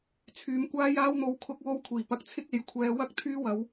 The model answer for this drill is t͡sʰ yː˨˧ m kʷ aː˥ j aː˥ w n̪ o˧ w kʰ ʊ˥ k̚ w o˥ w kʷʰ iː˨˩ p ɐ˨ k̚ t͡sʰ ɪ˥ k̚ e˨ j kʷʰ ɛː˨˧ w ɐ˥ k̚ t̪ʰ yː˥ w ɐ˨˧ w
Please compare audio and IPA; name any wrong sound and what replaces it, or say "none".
none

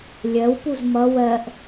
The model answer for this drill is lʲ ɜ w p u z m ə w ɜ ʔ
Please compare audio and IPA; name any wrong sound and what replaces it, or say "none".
ə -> ʌ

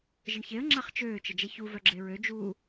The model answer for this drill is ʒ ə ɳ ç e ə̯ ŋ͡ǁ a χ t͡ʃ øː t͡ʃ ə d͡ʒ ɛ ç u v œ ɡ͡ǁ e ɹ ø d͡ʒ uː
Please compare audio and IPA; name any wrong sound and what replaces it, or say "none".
none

